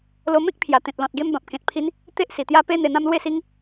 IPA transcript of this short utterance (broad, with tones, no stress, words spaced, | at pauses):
lo˧mẽ˦k̚pʰja˨˩ t̪ẽ˨t̚lɔ̃˨t̚ɡe˧m bã˨p̚kẽ˨t̚pʰi˧n | t̪e˦ʔsi˨˩t̪ja˦ pe˦ n̪e˧n̪ã˦mlwe˥˧si˦ŋ